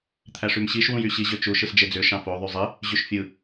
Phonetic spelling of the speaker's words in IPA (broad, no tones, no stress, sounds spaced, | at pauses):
t̪ʰ æ ʂ y m ɕ i ʃ w ũ j y ɕ i ʑ ø t͡ʃ u ʃ ɯ s d͡ʒ e d͡z ø ʃ ɑ̃ f o ðˤ y zˤ i | ʑ y ʃ fʲ ɯ